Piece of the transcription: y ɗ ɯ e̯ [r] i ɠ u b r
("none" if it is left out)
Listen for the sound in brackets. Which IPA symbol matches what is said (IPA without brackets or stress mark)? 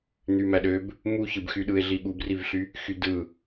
ɮ